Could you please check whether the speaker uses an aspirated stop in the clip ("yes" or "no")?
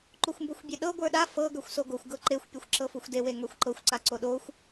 no